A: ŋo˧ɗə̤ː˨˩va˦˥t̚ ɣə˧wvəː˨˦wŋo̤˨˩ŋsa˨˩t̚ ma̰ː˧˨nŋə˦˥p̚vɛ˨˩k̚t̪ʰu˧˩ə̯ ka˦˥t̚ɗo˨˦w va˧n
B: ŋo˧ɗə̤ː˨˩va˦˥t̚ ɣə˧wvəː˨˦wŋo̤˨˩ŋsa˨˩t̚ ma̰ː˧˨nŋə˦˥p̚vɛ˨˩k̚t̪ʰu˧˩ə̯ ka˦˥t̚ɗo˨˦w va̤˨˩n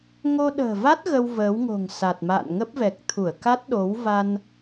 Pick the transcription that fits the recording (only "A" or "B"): A